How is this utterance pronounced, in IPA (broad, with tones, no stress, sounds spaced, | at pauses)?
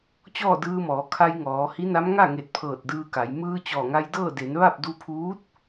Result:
t͡ɕ ɔː˥˨ d ɯː˧ m ɔː˩˧ kʰ a˧ j ŋ ɔː˩˧ h i˧˥ n a˧˥ m ŋ a˥˨ ŋ e˧˩ t̚ pʰ ɤː˧˩ t̚ d ɯː˧ k a˩˧ j m ɯː˧ t͡ɕ ɔː˧˩ ŋ a˧ j d ɤː˥˨ d e˩˧ n ʋ a˥˨ p̚ d u˧ pʰ uː˧˥ t̚